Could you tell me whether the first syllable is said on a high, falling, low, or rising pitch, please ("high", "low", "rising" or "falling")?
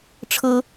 high